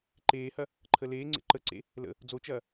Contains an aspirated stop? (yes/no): yes